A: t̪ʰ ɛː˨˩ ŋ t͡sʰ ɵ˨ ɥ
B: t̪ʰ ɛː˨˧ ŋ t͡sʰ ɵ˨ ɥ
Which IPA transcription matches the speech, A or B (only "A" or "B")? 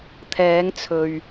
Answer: B